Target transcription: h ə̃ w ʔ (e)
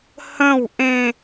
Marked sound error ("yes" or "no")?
yes